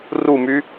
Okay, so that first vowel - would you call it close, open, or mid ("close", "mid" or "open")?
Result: close